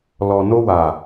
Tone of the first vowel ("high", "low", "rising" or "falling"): low